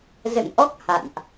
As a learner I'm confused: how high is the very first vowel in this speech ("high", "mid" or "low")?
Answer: mid